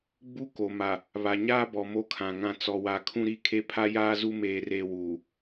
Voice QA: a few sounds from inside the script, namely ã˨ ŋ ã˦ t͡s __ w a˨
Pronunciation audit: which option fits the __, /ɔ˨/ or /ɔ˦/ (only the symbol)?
ɔ˨